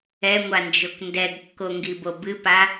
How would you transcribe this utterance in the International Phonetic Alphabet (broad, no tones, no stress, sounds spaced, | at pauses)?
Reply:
ɛ ŋʷ a n d͡ʒ o k n d ɛ ɡ kː o ŋ ɡ i b o b ɨ p a